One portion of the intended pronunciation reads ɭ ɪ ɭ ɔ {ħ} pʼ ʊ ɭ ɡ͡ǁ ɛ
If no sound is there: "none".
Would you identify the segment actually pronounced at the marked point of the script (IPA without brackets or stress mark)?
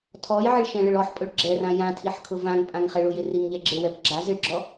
ħ